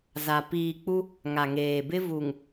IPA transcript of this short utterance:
za˨ piː˨k͡pu˦ | ŋa˨ŋeː˨bɪ˦ vu˨ŋ

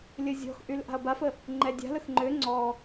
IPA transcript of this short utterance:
lʲəzʲɔ̤xʔyl ʔa̤ɐ̯bafə | ŋ͡ǃɛdʲa̤ləx ŋ͡ǃø ŋ͡ǀɔ

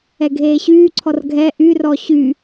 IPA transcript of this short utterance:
ɛɡʱeːɕyːǀʰɔr ɡʱɛ ʔyrɔ ɕy

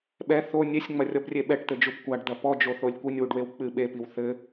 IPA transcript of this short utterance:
ɓɛ θo nʲesʲŋ͡mɐrʲɔbrʲe ɓɛʈt̪ɘd͡ʒub kʷaɖd̪ɐ pɔd͡ʒoθolʲ kʷinʲwuɖwew k͡pɨ ɓepiw θɘ

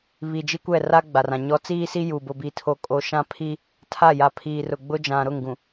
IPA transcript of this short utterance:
βi˨d͡ʒi˦kʷɛ˦˨ ra˦ ɡ͡ba˨rã˨ ɲɔ˨˦t͡siː˦si˦ ju˨ bʊ˨bi˨tʰo˨ kʼo˨ʃã˦pʰi˦ | tʰa˦˨ja˨ pʰiː˨rʊ˨ ɡ͡bʊ˦d͡ʒã˨ ɾʊ˦˨ŋɡũ˨

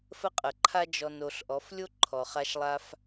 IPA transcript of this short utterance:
fə˥qʼə˩ǃʰa˥ d͡ʒɔ˧n o˩˧ɬʔɔ˩˧f lʲo˥ǃʰɔ˩ χa˧ʃlˠa˧f

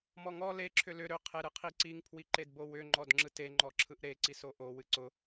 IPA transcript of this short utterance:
mɔŋɔ le ǁʰʏlʏ ɾʏ qʰeɾɨqʰiǀiŋ pʰwiǃedbowʏ ŋ͡ǃɔdŋ͡ǁɯte ŋ͡ǃɔǁʰɯʔɾe ǀisoʔo wɨǀʊ

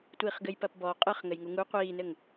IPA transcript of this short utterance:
tʷiːχɡɘjpɐpbɔ qʼɨχ ŋɘjŋuŋu qʷiːnɘŋ

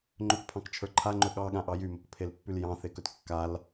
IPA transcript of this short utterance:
ŋ͡ǃɵkpʰɑ̃kt͡ʃʰə˞ ǃʰaŋ͡ǃɵ ɠɑɠãʔɑ jymɵkpʰelpːyl jɑ̃θekɵt kːal

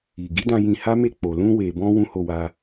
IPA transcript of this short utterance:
i˨ɡi˨˦dã˧ jĩ˧ha˦ me˦˨k͡po˨ lũ˧we˨bɔ̃˧ wũ˦ho˧wa˧

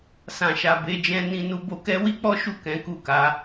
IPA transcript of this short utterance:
sã˨ʃa˨ be˨˦d͡ʒɛ̃˦ nĩ˧nu˧ bo˧kɛ˦ wi˦k͡pɔ˦ʃu˦˨ kɛ̃˨˦ku˦˨ka˨˦

